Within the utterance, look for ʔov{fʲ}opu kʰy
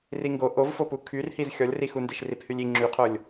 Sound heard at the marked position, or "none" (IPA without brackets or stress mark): f